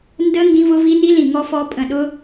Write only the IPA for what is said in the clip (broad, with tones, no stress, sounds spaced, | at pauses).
n d ə˦˥ ŋ ɡ ĩ˦˥ v ʊ˦˥ v i˦˥ n i˦˥ l ĩ˧˩ ŋ ɔ˦˥ f ɔ˦˥ pʼ ə̃˧˩ ɗ ʊ˦˥